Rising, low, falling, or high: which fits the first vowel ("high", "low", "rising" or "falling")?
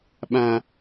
high